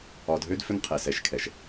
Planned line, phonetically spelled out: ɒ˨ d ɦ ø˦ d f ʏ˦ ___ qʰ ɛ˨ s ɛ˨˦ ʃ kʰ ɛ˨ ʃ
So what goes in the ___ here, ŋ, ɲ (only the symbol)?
ŋ